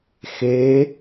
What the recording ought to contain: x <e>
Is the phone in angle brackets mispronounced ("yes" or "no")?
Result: no